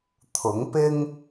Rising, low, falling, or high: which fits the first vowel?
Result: rising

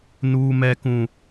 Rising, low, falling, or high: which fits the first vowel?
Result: high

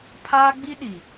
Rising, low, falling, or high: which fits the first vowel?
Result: high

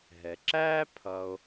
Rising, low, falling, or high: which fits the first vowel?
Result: low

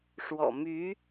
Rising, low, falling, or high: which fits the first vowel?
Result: low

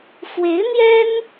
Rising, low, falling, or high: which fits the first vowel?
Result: rising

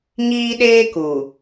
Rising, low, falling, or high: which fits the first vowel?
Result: high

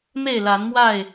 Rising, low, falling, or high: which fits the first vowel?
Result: falling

